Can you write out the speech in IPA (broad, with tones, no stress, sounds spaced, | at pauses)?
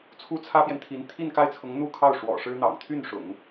t͡sʰ u˥ t͡sʰ ä˥ p j ɛ˨ n t̪ʰ i˧˥ n t̪ʰ i˥˧ n k a˥˩ ɪ̯ t͡sʰ ʊ˧˥ ŋ n̪ u˥˧ kʰ ɑ˥˩ ʊ̯ ʂ w ɔ̰˨˩ ʂ ɻ̩˥ n̪ ɑ̰˨˩ ŋ t̪ʰ y˥˩ n ʂ ʊ̰˨˩˦ ŋ